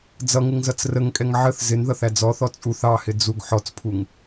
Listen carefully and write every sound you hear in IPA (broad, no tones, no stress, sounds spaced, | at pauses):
d͡z ʌ ŋ ɪ ŋ z ʌ t͡s r ə ŋ kʼ ɛ ŋ ʕ ə θ z ɪ n ð ʌ θ æ d͡z ɔ θ ɔ t͡sʼ u θ ɑ h ɪ d͡z u ɡ ħ ɔ t͡s pʰ u ŋ